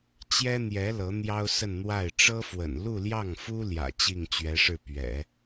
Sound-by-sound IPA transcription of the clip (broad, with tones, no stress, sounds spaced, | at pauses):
t͡ɕ j ɛ˥ n̪ j ɛ˧˥ l ɤ˧˥ n̪ j ɑ˥ ʊ̯ s ə˥˧ n n̪ w a˥˩ ɪ̯ ʈ͡ʂ ɤ˥ f w ə̰˨˩ n l u˥˧ l j ɑ˥˩ ŋ f u˥ l j ä̰˨˩ t͡ɕ i˥˩ ŋ t͡ɕ ɥ ɛ˧˥ ʂ ɻ̩˥˩ p ɥ ɛ̰˨˩˦